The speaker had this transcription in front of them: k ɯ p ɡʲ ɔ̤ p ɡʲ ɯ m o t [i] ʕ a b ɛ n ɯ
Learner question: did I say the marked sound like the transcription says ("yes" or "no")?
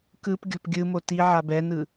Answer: yes